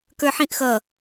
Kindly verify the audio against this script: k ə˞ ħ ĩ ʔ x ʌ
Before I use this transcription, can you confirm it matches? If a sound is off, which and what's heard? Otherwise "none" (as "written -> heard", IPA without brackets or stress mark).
none